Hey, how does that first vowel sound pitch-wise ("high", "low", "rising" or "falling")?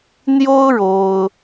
high